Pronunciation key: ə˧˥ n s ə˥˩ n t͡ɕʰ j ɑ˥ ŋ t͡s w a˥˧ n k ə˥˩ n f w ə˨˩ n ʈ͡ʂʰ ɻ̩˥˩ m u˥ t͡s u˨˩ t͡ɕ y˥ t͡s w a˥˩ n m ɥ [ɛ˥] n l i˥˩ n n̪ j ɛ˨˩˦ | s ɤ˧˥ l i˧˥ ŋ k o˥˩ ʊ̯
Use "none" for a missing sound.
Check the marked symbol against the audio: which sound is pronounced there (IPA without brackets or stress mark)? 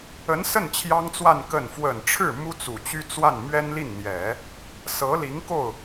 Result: ɛ˥